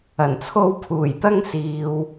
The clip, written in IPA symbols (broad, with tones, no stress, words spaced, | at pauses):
ɐ˨˩nt͡sʰo˥wpʰuː˨˩j t̪ɐ˥ŋ siː˨w